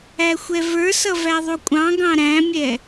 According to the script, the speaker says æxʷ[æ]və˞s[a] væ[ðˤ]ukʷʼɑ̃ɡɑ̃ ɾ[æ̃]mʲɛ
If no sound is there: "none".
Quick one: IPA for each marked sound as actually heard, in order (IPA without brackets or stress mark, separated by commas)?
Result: ɛ, ʌ, ðˤ, æ̃